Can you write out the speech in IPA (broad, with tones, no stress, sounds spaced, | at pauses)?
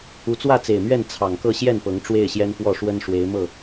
u˨˦ t͡s w ä˥˨ t͡s e˨˩ ɪ̯ m ɥ ɛ˥˨ n t͡sʰ ɑ˨˩ ŋ k ɤ˥˨ ɕ j ɛ˥˨ n p ɤ˨˦ ŋ ʈ͡ʂ w e˥˨ ɪ̯ ɕ j ɛ˦ n f w ɔ˥˨ ʂ w ə˦ n ʂ w e˨˦ ɪ̯ m ɤ˥˨